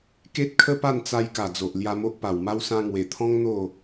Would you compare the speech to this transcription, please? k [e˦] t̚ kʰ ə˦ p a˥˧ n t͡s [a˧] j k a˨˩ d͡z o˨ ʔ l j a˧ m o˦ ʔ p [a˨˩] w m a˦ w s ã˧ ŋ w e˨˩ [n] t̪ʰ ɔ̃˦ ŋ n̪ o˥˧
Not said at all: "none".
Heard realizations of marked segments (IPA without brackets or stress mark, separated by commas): e˦, a˧, a˨˩, none